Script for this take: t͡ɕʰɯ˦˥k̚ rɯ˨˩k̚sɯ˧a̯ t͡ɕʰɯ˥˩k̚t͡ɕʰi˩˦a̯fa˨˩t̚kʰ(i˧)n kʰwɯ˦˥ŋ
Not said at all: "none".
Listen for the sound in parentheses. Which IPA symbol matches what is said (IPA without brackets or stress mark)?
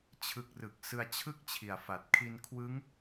i˧